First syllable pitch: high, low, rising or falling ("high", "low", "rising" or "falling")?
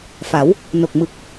rising